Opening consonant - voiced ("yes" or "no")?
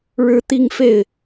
yes